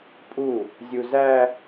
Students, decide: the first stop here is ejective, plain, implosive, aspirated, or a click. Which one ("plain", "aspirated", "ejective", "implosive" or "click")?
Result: ejective